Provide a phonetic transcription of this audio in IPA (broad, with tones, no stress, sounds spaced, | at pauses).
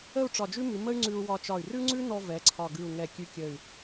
ə˥˧ u̯ ʈ͡ʂ ɒ˧˩ d͡ʒ ʉ˥ m ʉ˩˧ m ə˥ y̯ ŋ͡ǀ ʉ˧ u̯ w ɒ˧ t͡ʃ ɒ˧˩ y̯ r ʉ˥ ŋ͡ǀ ʉ˥ n ɔ˧ v ɛ˩˧ ǀʰ ɒ˧˩ ɡ ʉ˧˩ u̯ ŋ ɛ˧˩ kʲ ʉ˧ kʲ ə˧˩ y̯